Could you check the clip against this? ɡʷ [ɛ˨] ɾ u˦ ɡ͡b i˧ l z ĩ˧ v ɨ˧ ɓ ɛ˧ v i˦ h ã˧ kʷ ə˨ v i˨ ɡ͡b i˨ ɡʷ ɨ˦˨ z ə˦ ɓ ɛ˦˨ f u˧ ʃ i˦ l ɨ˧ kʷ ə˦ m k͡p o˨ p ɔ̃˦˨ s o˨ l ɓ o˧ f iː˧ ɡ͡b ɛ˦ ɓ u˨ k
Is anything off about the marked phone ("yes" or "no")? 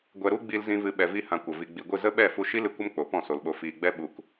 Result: yes